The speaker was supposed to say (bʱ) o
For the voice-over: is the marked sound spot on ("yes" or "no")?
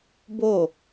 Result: no